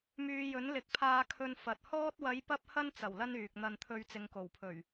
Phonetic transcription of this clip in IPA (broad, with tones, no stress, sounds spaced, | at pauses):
m yː˧ j ɵ˨˥ n l ɪ˨ k̚ pʰ aː˧ kʰ ɵ˨ n f ɐ˨ t̚ h ɔː˧ t̚ w ɐ˨˧ j p ɐ˧ p̚ h ɐ˧ n t͡s ɐ˨˩ w l ɐ˧ n yː˨ k̚ n̪ ɐ˧ n t̪ʰ ɵ˧ ɥ t͡s ɪ˨ ŋ k o˨˩ w pʰ ɵ˨˩ ɥ